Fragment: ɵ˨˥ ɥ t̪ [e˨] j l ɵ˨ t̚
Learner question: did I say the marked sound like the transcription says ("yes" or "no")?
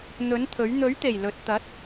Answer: no